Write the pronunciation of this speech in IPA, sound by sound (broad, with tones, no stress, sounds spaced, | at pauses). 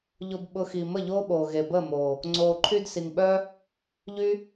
ʎ ʊ˧ b ɓ ʊ˧ x i˨ m ə˦˨ ʎ oː˦ ɓ oː˨ ɣ e˨ b əː˦˨ m oː˨ | ŋ͡ǀ oː˨ ǃʰ y˧ d s i˨ ŋ ɓ œ˦ | ʎ y˦